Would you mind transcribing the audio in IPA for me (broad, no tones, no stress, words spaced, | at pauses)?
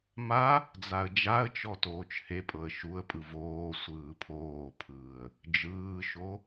ma | d͡zaə̯d͡ʒaə̯t͡ʃɔ toːt͡ʃhepʼɤə̯ ʃuə̯pʼɯ voː sʷɯːpʰoːpʰɯːə̯ | d͡ʒɯːʃo